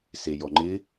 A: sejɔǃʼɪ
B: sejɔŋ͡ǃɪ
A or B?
B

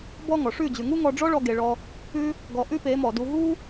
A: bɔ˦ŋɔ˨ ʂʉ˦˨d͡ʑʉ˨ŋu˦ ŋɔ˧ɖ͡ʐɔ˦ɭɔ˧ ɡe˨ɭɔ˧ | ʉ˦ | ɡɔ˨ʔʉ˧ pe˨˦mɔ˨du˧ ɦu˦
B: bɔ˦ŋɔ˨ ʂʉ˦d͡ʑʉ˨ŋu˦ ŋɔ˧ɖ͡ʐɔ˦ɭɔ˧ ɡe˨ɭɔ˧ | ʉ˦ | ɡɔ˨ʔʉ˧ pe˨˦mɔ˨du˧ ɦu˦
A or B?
A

